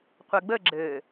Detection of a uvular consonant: present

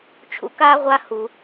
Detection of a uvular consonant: present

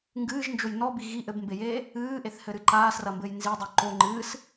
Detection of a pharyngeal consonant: absent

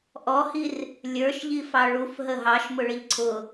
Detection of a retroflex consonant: present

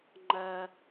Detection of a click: present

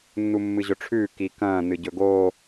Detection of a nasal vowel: present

